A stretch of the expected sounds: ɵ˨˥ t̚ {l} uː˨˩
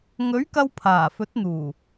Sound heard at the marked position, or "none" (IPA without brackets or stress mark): n̪